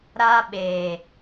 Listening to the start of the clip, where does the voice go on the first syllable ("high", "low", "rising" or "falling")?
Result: high